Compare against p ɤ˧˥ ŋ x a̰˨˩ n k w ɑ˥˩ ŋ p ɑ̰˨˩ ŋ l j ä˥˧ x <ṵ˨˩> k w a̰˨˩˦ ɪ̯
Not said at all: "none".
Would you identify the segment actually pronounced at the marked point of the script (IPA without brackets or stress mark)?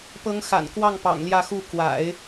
u˥˩